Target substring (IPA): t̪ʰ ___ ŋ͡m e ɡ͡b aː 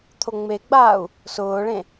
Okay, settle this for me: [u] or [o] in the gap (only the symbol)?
o